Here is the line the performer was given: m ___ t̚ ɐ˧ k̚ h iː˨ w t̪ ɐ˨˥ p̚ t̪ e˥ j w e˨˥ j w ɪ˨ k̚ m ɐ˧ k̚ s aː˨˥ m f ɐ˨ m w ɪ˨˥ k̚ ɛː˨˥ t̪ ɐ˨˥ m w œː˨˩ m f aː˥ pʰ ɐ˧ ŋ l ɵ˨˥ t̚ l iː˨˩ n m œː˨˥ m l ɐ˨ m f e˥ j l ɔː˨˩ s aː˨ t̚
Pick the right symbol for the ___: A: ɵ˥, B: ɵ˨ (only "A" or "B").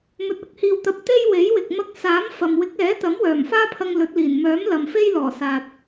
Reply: B